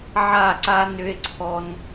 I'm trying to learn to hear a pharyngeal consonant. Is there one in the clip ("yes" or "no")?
yes